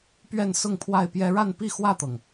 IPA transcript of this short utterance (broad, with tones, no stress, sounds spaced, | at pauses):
p ɥ ɛ˥˨ n s ʊ˥˨ ŋ pʰ w a˥˨ ɪ̯ p j ɛ˦ ɻ a˥˨ n p i˥˨ x w ä˥˨ t̪ ɤ˩ ŋ